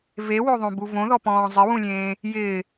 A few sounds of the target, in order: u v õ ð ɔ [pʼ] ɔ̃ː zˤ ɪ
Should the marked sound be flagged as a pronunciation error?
yes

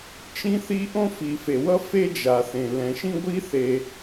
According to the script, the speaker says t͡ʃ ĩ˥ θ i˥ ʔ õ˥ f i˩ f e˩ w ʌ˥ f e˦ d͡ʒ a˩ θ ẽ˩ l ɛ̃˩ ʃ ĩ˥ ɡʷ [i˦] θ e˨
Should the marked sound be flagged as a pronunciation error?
yes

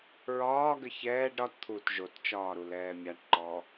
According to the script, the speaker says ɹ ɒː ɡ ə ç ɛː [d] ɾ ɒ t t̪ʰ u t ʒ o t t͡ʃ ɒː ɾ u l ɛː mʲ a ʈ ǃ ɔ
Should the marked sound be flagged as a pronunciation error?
yes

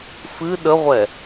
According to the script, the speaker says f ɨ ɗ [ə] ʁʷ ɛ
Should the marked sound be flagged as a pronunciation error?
no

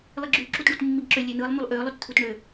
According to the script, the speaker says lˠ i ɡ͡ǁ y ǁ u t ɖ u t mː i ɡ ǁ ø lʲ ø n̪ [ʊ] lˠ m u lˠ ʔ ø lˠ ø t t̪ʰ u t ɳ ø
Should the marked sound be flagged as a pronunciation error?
yes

